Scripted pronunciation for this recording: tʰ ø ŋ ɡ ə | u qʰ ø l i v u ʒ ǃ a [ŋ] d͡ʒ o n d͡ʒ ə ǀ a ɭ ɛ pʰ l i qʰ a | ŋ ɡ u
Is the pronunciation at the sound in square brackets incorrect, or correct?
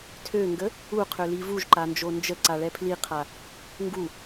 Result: incorrect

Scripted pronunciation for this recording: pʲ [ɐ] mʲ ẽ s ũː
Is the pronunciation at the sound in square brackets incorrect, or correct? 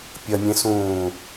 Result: correct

